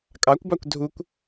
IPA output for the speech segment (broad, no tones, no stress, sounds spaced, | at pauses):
kʼ ɑ kʷ b ɑ kʷ dʱ u kʷ